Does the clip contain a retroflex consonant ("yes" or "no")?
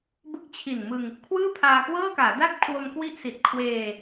no